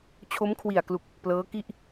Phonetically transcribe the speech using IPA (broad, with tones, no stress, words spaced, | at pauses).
t͡ɕʰo˦˥mkʰwi˨˩a̯klu˨˩k̚ | plɤː˦˥ki˥˩ʔ